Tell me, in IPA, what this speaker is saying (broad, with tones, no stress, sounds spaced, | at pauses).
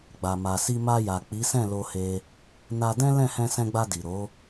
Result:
ɡ͡b a˨ m a˨ s i˧ m a˧ j a˨ k͡p i˨˦ s ɛ̃˦˨ l o˧ h e˧ | n a˧ d ɛ̃˦ l ɛ̃˦˨ h ɛ̃˧ s ɛ̃˧ ɡ͡b a˧ d i˨ ɾ o˨˦